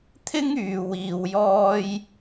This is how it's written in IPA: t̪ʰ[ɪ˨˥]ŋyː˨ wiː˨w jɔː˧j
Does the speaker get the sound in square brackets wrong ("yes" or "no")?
yes